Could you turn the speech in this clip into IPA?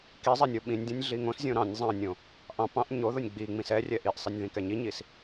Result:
ki zˤɛnʲoɓĩnʲdʲõnʲ ɮiŋõszʲõ ɾɑ̃nʲ zˤɑ̃nʲõ | ʔɑ̃ pɑ̃ʔ ɲo ðonʲɡ͡biŋ͡mĩs ɛrʲɛ ʔiʔsˤinʲ ðĩkɛɲiɲis

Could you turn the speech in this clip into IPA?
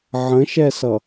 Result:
ʕə̃ʃɛsʌ

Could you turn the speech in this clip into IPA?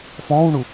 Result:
fɔ̃ːwɳu

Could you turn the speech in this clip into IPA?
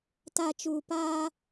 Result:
ta˨ t͡ʃuː˨paː˦

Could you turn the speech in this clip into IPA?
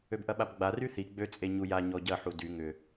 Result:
øbʔɐɓabɡ͡ba ryθi ɡ͡bøt͡sʼe ɲuja ɲɔɟɐħu dy ŋʏ

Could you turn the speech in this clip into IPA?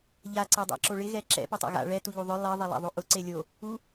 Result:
ʎa ǀedˤa̰ǁoɭɪ ɣɛǁɛ̰ potˤa̰ɣa̰ ɭɛ tuʎuðˤʊ lˠe ðˤɛlˠa̰ðˤoʔʊ ǀelʲo | u

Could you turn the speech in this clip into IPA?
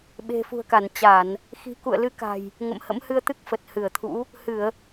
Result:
ɓe̤˨˩fṳ˨˩ə̯ka˧˩n t͡ɕa˧˩˨n | xi̤˨˩kṵ˧˨ə̯lɨ˨˦ ka̤˨˩j | ŋə̰˧˨mhə̰˧˥m hɨ˧ə̯t̪ɨ˦˥k̚ fə˨˩t̚hɨ˧˩ə̯t̪ʰṵ˧˥ | hɨ˧˩˨ə̯

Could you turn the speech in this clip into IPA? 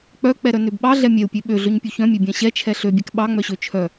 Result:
k͡pœk͡pɛɾœnøb ɓɑɮɛ mʲɛu̯pʲø ɓøɮøɲpʲu çœ̃mʲøbʲɑ̃ ɕɛt͡ʃʰɛ ɬøbʲɛk ɓɑŋ͡mœɕø t͡ʃʰœ

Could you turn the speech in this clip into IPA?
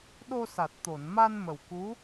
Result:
ɗo˧sa˨˩t̚t̪o˨˩˨nma˧n mə˨˩wku˧˥

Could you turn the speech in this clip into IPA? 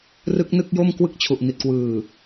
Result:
rɯ˦˥k̚ nɯ˥˩k̚jo˥˩mkwɯ˥˩k̚ t͡ɕʰu˨˩ʔni˨˩t̚kwɯː˨˩

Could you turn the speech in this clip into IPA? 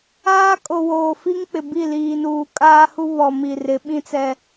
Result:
aː˦kʼo˨ woː˨fi˦ŋk͡pɪ˨bi˦˨ liː˨nuː˨ kʼaː˦hu˦ βɔ˨mi˨ rɪ˨˦ɓĩ˦t͡sɛ˦

